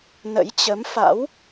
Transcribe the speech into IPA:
nə̰˧˥jt͡ɕə˨˦mfa̰˧˥w

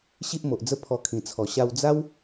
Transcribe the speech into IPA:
ɕi˦ʔmo˨ʔd͡zə˦ pʰɔ˧kʰĩ˨˩t͡sʰɔ˨˩ ɕa˧wd͡za˦w

